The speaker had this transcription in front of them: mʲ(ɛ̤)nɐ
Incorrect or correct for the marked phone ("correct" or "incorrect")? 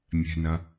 correct